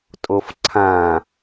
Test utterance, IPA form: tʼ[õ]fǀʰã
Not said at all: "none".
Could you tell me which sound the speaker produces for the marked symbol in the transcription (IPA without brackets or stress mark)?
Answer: o